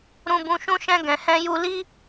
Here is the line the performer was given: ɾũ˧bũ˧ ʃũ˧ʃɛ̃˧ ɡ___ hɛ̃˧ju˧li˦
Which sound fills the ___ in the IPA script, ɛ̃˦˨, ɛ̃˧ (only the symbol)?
ɛ̃˧